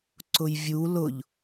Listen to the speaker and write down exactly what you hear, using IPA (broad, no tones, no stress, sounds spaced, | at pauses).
ǀ ʊ j vʲ u l ʊ ʎ